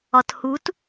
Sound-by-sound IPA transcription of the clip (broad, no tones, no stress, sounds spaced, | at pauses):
ɒ t h u t